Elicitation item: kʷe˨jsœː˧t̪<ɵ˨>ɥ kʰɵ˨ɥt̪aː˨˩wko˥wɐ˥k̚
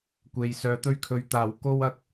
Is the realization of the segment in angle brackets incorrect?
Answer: yes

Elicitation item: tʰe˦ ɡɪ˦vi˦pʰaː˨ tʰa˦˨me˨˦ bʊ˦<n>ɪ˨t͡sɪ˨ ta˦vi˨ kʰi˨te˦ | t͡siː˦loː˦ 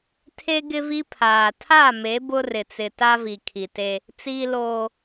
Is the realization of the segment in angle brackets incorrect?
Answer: yes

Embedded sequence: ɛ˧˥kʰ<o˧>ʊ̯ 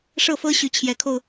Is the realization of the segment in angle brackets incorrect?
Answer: no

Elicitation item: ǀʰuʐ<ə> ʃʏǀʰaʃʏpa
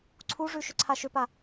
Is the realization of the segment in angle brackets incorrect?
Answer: yes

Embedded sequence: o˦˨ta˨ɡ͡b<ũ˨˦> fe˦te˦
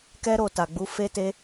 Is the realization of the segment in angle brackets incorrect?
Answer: yes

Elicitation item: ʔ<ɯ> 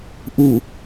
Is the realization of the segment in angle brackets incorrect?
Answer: yes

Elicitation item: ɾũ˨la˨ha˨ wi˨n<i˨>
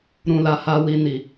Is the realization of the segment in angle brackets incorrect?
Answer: no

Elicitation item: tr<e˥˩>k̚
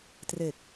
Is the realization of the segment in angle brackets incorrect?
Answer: yes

